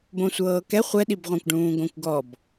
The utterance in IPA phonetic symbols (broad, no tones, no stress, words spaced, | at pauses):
bõsʷɤːkɛ χʷɛɗibʁʷãkʷɖũː ɡõkʷɡɔb